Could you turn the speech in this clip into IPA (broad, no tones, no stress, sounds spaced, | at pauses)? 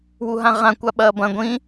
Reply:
w u ɦ ã ʁ ã kʷ a ɓ ɐː b ɐ̃ ɡʷ ĩ